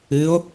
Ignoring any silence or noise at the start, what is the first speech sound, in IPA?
ɨ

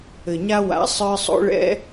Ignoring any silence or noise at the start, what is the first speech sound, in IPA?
ɘ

